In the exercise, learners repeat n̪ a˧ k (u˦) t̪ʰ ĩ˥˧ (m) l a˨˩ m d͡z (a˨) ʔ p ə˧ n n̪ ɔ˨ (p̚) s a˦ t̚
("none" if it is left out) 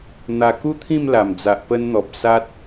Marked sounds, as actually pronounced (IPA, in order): u˦, m, a˨, p̚

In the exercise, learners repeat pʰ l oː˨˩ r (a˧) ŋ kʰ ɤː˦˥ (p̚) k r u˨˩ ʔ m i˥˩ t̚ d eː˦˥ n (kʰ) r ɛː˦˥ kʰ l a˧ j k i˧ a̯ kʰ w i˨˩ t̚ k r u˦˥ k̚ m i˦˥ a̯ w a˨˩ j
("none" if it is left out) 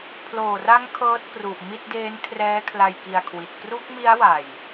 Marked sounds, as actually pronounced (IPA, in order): a˦˥, t̚, kʰ

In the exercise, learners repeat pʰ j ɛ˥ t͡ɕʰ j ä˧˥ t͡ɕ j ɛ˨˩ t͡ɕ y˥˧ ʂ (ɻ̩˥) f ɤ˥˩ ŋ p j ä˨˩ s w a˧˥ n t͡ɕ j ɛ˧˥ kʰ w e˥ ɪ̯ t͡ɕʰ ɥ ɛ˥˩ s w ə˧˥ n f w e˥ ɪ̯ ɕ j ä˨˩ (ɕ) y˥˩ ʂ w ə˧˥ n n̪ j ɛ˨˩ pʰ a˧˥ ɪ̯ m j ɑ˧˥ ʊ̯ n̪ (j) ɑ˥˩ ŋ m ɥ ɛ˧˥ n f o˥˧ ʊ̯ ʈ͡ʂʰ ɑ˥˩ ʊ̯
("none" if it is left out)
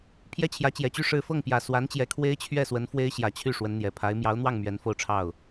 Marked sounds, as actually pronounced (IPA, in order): ɻ̩˥˧, t͡ɕʰ, w

